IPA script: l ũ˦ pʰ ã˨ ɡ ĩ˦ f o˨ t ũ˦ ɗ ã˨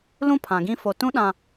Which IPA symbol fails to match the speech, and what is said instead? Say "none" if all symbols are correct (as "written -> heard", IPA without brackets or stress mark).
none